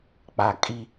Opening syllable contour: low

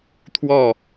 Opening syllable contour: falling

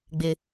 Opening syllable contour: high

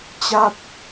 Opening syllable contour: falling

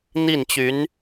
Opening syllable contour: falling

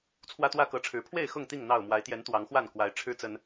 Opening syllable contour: high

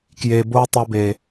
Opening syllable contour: low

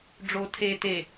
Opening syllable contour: low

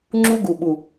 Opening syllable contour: high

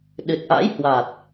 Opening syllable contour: low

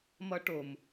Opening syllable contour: high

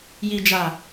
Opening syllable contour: low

